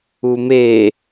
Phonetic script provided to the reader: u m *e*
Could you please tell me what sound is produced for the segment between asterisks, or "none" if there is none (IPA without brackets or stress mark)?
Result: e